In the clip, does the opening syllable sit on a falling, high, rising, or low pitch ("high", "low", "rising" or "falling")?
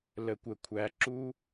low